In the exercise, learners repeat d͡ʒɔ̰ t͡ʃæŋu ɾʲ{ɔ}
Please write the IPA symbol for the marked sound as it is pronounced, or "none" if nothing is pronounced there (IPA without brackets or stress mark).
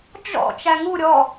ɔ